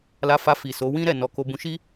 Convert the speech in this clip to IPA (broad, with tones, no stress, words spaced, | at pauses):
la˧fa˧fi˨ so˨˦wĩ˦ ɾɛ˦˨nɔ˧ ko˧ bũ˧ʃi˦